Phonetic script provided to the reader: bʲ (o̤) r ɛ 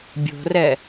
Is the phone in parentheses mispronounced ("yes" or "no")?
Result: no